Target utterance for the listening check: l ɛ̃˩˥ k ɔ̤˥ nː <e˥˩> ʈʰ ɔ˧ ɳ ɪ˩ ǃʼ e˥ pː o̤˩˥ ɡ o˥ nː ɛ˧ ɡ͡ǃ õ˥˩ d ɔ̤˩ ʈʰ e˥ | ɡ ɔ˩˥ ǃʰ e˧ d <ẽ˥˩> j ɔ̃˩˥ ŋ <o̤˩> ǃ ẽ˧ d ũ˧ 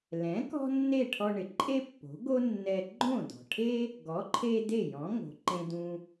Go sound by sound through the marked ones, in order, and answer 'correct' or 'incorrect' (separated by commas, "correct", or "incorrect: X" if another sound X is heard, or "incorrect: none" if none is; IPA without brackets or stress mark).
correct, incorrect: e˥˩, correct